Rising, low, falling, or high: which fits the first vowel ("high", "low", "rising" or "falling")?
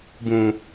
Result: low